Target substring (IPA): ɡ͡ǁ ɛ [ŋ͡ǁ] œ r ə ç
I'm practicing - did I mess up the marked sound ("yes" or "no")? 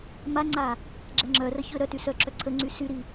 no